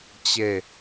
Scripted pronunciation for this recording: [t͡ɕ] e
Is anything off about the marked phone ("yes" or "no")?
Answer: no